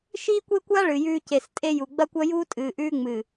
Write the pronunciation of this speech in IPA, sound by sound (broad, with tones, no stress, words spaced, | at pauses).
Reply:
ʃiː˦kʷe˦kʷa˦ ɭɨ˨jʉː˦ ce˨stʼe˦ju˨ ɡ͡bɐ˦kʷɐ˦juː˦ tʼɨː˨ʔʉː˦ŋ͡mɨ˨